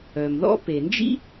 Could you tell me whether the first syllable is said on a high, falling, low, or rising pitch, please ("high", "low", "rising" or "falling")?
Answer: low